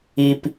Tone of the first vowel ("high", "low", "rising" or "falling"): low